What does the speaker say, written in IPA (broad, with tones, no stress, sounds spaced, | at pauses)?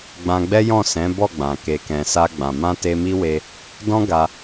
ɡ͡b ã˧ ɡ͡b ɛ˦ j ɔ̃˦˨ s ɛ̃˨˦ b ɔ˦˨ ɡ͡b ã˨ k e˨ k ɛ̃˨ s a˧ ɡ͡b ã˨ m ã˧ t e˧ m i˦ w e˧ | d ɔ̃˦ ɡ a˧